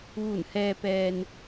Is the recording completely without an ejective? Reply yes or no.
yes